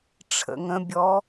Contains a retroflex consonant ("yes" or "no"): yes